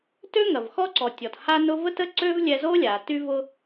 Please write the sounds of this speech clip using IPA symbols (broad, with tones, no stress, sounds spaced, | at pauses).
t ø˥ ŋ ɐ˩ v x ɔ˧ ǀ ɔ˩ tʲ ɔ˩ t h a˧ n ʊ˧ v ə˥ t ə˥ ǀ ø˥ v lʲ ɛ˧ z o˥ lʲ a˩ t y˧ v ʊ˧